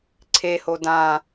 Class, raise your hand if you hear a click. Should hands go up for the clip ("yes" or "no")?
yes